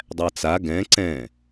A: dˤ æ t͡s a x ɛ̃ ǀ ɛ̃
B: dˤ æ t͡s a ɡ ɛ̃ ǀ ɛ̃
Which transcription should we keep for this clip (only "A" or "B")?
B